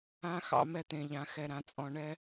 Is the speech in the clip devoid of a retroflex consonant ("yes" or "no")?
no